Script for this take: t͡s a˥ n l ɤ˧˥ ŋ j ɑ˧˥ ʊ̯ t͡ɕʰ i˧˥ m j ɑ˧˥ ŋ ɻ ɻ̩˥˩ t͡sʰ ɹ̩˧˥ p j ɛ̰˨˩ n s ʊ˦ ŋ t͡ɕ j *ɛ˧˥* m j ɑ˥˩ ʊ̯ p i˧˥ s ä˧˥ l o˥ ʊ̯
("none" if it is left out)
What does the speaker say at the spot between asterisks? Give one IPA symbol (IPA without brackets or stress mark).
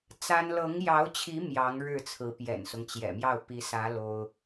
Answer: ɛ̰˨˩